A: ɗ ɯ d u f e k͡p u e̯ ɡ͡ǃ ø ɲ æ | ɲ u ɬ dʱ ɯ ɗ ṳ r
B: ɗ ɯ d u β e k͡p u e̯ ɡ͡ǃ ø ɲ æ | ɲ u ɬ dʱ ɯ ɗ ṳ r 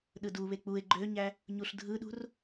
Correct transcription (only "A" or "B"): B